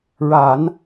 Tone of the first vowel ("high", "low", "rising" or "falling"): low